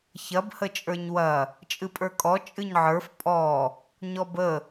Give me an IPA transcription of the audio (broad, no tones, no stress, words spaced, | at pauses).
çɐb hət͡ʃʼə˞ɲwɐ | t͡ʃʼɨpʼə˞kʼɔ t͡ʃʼɨɲʕə˞f pʼɔ | ɲɔbə